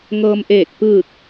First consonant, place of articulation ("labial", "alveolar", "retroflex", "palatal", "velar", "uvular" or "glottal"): velar